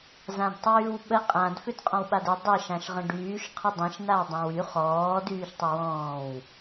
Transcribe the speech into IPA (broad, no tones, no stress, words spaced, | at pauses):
zãdtˤyːwɓə qʼãd fʏdqʼɔ̃wɓadɪ dˤɪ ʃãʃʁə̃ɖyːʃ qʰədˤɛ̃ʃ nawdˤãwy χɔː dyːʃtˤəwɔ̃ːw